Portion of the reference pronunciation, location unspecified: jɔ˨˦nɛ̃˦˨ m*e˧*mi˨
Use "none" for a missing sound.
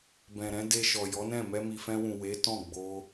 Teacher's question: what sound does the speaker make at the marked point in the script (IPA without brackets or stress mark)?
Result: ɛ˧